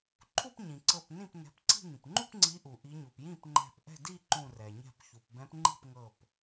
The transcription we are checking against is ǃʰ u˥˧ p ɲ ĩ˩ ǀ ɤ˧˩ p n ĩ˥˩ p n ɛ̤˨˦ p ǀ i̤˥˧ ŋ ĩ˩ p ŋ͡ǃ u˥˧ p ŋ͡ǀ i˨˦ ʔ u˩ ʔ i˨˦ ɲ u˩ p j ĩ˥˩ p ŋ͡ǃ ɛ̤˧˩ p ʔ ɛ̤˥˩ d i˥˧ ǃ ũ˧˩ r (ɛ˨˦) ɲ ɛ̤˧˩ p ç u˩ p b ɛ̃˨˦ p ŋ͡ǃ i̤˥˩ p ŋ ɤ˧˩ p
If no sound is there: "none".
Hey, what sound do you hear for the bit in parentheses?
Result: ɛ˩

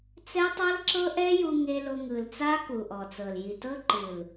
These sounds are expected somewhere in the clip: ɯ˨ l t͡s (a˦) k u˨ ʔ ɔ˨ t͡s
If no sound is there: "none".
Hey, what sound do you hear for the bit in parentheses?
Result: a˦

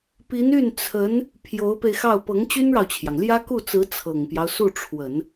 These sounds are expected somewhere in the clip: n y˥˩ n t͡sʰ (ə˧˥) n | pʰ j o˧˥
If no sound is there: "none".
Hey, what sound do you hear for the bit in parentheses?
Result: ə˧˥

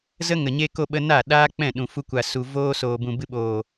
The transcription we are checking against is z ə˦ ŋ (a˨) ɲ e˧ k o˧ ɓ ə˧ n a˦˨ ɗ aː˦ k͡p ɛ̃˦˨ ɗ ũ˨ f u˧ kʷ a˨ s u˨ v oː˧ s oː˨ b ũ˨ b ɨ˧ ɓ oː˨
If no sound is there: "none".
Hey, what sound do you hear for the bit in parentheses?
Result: ə˨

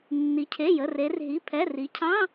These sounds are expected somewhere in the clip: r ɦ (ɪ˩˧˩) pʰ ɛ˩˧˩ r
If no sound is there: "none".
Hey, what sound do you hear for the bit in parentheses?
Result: i˩˧˩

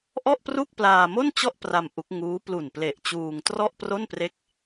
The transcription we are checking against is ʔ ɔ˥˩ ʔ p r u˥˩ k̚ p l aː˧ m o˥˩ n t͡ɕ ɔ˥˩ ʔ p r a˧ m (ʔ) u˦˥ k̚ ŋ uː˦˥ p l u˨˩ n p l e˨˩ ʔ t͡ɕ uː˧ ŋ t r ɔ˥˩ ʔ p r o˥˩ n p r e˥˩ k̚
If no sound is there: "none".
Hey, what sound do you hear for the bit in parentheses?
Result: ʔ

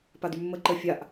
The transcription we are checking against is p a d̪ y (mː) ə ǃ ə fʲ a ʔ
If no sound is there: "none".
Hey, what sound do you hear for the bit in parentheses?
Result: mː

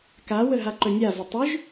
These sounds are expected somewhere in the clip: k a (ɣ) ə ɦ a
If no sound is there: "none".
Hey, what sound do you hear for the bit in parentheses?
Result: w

